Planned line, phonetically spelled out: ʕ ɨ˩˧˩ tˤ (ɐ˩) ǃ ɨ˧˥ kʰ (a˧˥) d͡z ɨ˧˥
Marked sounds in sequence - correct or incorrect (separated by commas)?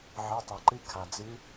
correct, incorrect